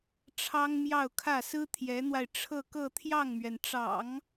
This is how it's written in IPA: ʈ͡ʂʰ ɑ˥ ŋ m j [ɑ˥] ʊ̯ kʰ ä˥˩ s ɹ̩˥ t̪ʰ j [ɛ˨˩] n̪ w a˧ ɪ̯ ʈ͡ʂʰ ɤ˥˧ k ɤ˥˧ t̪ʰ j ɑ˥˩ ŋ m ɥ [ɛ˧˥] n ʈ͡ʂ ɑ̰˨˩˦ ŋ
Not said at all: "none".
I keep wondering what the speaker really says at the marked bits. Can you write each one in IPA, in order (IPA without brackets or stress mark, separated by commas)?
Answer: ɑ˥˧, ɛ˧˥, ɛ˩